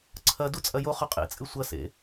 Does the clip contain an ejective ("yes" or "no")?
yes